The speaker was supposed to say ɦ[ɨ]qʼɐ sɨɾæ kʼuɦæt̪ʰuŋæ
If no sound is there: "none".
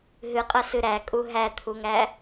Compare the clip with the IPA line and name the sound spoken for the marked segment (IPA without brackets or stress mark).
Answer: ɨ